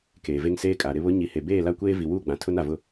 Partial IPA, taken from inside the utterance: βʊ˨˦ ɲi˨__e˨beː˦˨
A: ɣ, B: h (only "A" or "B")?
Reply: B